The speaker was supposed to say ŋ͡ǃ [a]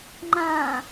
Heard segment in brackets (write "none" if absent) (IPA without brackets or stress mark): ã